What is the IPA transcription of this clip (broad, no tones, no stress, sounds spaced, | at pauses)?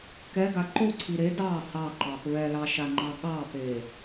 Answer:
k ɛ ɡ a ǃ o ǀʰ i ɾ e d ɑ h ɑ ǃ ɑ p ɹ ɛ l ɑ ʃ a ŋ͡ǃ ɑ ɠ ɑ p e